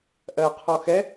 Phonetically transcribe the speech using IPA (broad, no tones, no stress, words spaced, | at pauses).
ʔɜqʰɔ xɛ